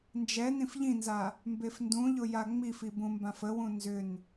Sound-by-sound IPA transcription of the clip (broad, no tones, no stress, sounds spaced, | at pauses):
n d͡ʒ ɛ n ĩ f ʎ ĩ n z a | m b e f n d ũ ʎ ʊ j a ŋ͡m i f i b ũ m b ã f ə w ũ n z ʏ n